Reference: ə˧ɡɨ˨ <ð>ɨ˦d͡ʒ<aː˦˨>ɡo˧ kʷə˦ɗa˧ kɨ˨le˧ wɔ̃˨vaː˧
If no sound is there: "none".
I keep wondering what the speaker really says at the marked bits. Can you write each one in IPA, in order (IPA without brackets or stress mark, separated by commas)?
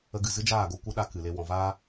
z, aː˦˨